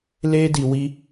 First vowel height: mid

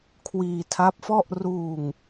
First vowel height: high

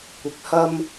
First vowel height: high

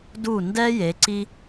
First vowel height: high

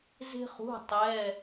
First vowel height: mid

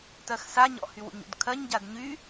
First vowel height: mid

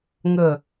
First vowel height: mid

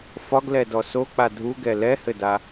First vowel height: low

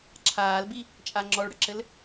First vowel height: low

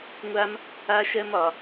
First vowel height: low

